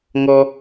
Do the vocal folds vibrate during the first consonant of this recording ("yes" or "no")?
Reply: yes